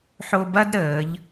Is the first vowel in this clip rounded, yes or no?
yes